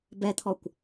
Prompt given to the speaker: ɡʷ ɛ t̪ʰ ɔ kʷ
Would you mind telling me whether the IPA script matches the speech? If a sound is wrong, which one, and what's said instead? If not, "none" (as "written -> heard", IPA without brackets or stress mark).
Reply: ɡʷ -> b